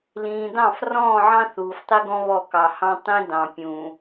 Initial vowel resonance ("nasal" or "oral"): nasal